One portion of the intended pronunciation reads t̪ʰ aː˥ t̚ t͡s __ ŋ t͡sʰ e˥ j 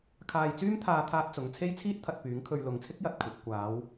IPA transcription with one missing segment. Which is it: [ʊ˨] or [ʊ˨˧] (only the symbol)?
ʊ˨˧